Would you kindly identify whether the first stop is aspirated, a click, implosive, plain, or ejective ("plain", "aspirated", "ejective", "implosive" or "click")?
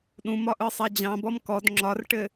implosive